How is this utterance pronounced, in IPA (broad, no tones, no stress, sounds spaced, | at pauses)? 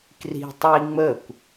k r i̤ tˤ i ŋ͡m ə kʷ